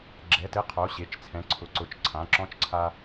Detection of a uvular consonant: present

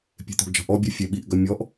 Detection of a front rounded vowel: present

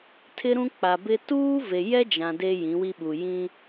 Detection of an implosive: present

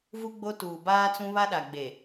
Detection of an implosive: present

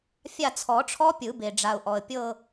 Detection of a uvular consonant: absent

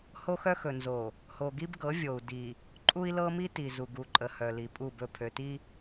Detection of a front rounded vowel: present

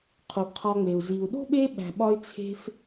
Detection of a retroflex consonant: absent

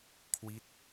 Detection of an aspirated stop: present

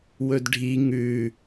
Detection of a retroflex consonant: present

